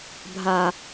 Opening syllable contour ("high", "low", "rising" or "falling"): low